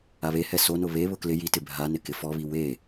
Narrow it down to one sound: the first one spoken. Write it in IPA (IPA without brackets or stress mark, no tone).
a